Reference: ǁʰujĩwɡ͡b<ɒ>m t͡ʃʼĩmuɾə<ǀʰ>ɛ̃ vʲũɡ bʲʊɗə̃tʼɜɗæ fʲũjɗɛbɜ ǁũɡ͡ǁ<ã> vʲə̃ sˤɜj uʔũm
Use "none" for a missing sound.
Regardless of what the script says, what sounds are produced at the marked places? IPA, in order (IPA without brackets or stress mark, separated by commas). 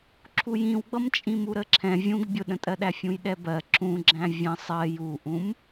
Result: ʌ, ǁʰ, æ̃